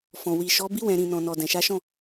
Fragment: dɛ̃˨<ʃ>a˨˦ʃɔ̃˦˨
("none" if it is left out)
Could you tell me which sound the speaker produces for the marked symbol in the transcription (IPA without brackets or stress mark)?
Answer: ʃ